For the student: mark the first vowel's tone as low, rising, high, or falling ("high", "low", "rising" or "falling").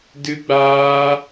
high